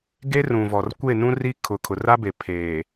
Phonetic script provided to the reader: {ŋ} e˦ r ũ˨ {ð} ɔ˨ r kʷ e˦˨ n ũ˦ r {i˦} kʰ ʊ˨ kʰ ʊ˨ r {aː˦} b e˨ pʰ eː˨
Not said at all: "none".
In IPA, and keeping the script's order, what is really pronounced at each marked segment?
ɡ, v, i˦, a˦

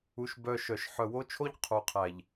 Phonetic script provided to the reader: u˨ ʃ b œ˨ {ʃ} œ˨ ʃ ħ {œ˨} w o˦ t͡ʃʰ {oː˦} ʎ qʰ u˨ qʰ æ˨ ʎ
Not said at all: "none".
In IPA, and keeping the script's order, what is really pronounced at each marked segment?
ʃ, œ˨, o˦

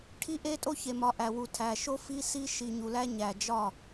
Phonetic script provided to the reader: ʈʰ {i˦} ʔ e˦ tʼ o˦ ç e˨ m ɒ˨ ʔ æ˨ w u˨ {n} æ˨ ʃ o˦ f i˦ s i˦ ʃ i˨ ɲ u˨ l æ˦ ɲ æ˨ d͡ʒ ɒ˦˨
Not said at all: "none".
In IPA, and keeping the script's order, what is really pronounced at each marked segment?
i˦, tʰ

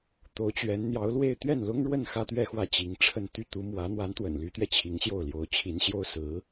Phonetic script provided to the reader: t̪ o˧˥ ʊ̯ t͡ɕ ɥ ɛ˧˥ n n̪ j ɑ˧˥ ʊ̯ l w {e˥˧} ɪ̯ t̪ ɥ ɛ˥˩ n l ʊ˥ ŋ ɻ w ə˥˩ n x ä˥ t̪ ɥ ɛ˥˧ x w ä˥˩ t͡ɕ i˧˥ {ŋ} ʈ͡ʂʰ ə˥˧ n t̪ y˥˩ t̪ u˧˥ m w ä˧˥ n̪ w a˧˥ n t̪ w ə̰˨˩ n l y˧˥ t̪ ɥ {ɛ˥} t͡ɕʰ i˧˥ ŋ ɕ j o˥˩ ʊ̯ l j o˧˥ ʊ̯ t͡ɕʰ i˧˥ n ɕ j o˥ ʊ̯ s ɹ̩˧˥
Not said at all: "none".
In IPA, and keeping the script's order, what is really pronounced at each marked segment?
e˥˧, ŋ, ɛ˧

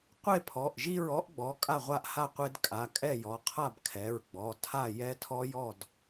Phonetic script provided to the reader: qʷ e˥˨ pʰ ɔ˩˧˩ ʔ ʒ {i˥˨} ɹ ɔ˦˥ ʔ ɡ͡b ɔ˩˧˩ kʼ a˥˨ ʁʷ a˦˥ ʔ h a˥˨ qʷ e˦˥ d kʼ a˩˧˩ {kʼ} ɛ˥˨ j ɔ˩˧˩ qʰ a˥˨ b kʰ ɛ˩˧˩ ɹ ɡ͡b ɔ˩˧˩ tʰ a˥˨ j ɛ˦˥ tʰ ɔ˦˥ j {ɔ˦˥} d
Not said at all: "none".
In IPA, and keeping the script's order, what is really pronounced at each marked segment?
i˥˨, kʼ, ɔ˥˨

